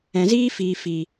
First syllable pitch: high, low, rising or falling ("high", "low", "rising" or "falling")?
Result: low